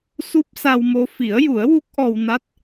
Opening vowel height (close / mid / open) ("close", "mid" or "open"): close